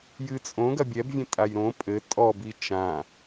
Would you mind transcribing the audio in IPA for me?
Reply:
j ɨ t͡sʼ õ ɡ ɐ bʲ ɛ b vʲ ẽ tʼ a j ɾ õ pʼ ɘ tʼ ɔ b i t͡ʃ ã

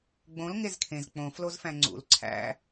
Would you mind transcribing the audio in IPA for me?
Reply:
ɡ͡b õ l ŋ e z kʰ ẽ z k͡p õ f l o z f æ̃ ŋ͡ǀ ṵ l ǀʰ æ̰

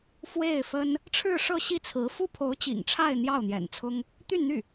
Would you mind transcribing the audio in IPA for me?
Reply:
f w e˥˩ ɪ̯ f ə˥ n | ʈ͡ʂʰ ɻ̩˥˧ ʂ ɤ˥˧ ɕ i˥˩ t͡sʰ ɹ̩˧˥ f u˥ pʰ o˧˥ ʊ̯ t͡ɕ ḭ˨˩ ŋ ʈ͡ʂʰ a˥˧ ɪ̯ n̪ j ɑ˥˩ ʊ̯ n̪ j ɛ̰˨˩ n t͡sʰ ʊ˥ ŋ | t̪ y˥˧ n n̪ y˥˩

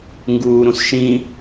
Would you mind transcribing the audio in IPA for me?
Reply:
ŋ ɡ uː ɾ ũ s ʃ ĩ

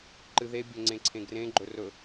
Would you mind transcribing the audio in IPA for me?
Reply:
ǃ ɨ ð e bʲ ɵ ŋ͡ǀ ẽ ǀʰ ẽ ɡ r ẽ ɡ͡ǃ ɵ r ɵ

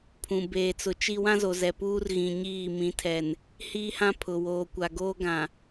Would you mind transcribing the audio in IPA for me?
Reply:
pʰ ũ˨ b eː˨ t͡s ʊ˨ t͡ʃ i˦ w ã˦ z o˨ z ɛ˨ p uː˦ r ɣ ĩ˨ ɲ iː˦˨ m ĩ˨ tʰ ɛ˨ n | h iː˦ h ã˦ pʰ ʊ˨ w oː˨ kʷ a˨ ɡ oː˦ ɡ ã˨

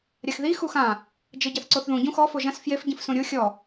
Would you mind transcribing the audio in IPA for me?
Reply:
ɾʲ a x ð i x u x ã | d͡ʒ ɘ ɟ ɐ θ ǀ o θ ð ũ ɟ ũ x ɔ f o ʒ ɐ̃ s f j e f ɟ ĩ f s ũ ɾʲ o xʲ ɔ

